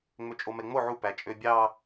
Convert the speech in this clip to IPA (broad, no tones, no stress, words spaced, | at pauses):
ŋ͡møt͡ʃʼomɛŋ͡mo ʕu pæt͡ʃʼøbʲɑ